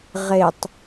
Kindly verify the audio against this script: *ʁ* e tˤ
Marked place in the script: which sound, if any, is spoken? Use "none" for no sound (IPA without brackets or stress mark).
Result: ʁ